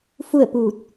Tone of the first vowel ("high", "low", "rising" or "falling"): falling